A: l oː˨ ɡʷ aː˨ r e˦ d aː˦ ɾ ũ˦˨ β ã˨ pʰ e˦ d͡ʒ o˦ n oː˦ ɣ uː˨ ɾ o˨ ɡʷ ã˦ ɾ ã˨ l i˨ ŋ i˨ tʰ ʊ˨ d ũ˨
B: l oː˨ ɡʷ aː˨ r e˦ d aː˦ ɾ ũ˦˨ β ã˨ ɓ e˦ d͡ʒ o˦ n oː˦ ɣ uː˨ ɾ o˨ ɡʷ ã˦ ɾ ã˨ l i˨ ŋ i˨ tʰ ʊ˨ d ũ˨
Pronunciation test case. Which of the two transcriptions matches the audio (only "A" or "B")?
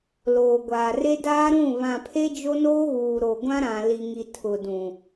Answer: A